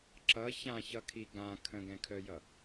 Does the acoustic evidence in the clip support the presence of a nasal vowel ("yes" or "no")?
yes